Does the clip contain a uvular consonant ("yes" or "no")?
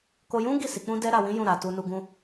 no